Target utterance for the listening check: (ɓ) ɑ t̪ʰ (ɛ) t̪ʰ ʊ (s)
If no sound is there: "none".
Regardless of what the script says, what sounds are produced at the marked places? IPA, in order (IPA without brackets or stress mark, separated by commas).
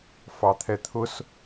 f, ɛ, s